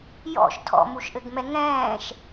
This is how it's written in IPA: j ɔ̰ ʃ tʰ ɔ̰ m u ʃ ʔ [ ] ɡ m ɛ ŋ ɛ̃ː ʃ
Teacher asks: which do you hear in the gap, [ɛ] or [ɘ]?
ɘ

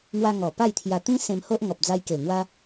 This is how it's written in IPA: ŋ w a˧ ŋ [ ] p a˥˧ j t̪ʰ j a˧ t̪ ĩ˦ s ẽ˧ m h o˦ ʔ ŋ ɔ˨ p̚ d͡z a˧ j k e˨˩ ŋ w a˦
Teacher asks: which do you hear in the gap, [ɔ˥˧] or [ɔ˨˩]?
ɔ˨˩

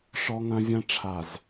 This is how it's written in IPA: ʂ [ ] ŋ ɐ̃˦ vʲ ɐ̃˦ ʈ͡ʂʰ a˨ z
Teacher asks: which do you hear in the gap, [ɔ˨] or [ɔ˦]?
ɔ˦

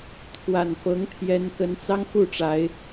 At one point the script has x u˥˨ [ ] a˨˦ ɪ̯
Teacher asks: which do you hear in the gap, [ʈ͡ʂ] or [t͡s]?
ʈ͡ʂ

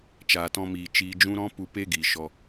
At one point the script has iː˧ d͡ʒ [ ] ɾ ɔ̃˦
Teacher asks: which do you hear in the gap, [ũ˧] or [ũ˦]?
ũ˦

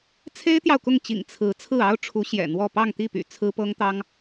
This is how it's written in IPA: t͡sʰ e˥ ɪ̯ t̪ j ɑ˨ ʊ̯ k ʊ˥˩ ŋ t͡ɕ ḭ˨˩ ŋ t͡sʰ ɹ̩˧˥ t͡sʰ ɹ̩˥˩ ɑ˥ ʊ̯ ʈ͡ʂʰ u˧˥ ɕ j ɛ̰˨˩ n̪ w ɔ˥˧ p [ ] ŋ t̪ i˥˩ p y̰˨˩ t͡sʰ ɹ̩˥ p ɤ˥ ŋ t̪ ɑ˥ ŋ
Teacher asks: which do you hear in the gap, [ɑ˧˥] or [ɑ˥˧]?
ɑ˥˧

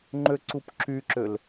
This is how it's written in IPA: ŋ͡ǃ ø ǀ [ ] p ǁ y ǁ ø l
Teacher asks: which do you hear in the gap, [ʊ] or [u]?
u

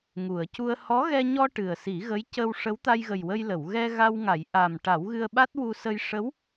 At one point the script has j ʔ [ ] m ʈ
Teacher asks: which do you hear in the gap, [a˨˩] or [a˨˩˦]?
a˨˩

